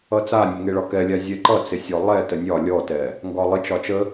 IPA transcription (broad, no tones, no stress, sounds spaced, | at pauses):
ʌ t͡s a nʲ ə ŋ e ɭ ɒ k ɛ lʲ a zʲ ɛ ǃ ʌ t͡s ɪ sʲ ɔ lˠ ɛ t ə nʲ ɒ lʲ ɔ t ɛ | ŋ ɡ ɒ lˠ ɪ t͡ʃ ɒ t͡ʃ ə